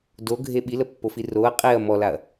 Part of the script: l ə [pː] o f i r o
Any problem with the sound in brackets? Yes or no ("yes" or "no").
no